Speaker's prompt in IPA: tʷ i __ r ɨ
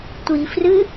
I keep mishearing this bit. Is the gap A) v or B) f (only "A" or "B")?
B